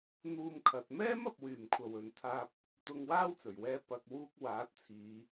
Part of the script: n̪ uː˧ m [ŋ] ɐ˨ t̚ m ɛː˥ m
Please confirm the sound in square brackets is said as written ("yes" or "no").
no